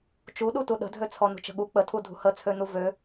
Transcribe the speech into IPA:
t͡ʃuɗutu ɗə̤dʱøt͡sʰɔ nṳt͡ʃə̤ɠu k͡pətʰu dʱṳhət͡sʰønu vø

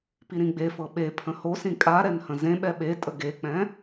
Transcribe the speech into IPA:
piɾĩɡ͡befɤ ɓepʰə̃ hosĩ kʼaɾɛn hə̃zẽɓɛ ɓetʼə ɡek͡pɛ̃

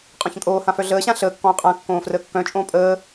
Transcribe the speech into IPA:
qʼɔ̃çə̃kʼoːhã fœɮəːɕã ɬəːkːɔ̃ː qʼã kːõːfrəːkːœ̃t͡ʃʼõː pʼəː

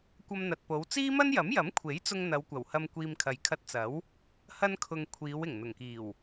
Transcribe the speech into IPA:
kʷɐ˧mn̪ɐ˨t̚po˨˧w t͡siː˥mɐ˥njɐ˨˥mjɐ˨˥m kʷʰe˨˥jt͡sʊ˧ŋ n̪ɐ˨˧wkʷɐ˨˩whɐ˧m kʷiː˨mkʰɐ˨j kʰɐ˧t̚t͡sɐ˨˥w | hɐ˧nkʰʊ˨ŋ kʷʰiː˨˧w ɪ˨˩ŋ n̪ʊ˨˩ŋkiː˨˩w

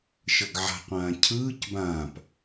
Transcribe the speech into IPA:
ʃɤɡʕa̤qʷãː cʰɯːc bãːp

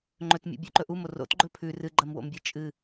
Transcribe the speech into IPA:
ŋ͡ǃɵtmʲṵ bʲʉǃɵʔumo ro̰tɡ͡ǃɵ pʰʉ rɨɡ͡ǃɐmwo̰mbʲɨ t͡ʃʼɨ

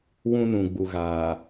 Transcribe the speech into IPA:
wũ˦nũ˨ɡ͡bu˨ɣaː˨

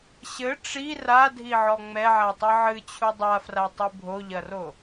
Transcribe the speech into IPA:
ɕɘ ʈ͡ʂi radʱiʕɔ ŋ͡mɛʕatˤɨ ʕɨt͡ɕʰu dˤafratˤɨ bʱoʎɐro

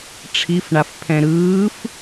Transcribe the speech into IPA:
ʈ͡ʂʰifɳaf pʰɛ̃ɾɯːf

